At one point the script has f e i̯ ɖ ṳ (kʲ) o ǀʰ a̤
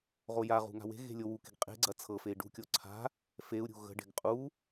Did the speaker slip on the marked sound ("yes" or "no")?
no